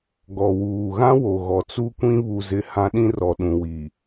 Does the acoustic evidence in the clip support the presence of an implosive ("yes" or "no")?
yes